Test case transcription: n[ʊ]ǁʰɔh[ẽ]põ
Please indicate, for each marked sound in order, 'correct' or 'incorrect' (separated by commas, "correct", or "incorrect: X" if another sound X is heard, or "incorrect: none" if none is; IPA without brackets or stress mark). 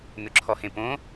correct, correct